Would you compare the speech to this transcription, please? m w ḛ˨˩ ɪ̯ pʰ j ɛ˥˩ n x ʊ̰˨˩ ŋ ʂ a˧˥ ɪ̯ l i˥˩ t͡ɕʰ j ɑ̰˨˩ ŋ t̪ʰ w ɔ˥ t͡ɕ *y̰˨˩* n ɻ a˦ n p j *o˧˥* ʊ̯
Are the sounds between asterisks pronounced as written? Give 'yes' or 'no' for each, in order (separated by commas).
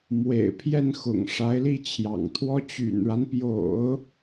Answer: yes, no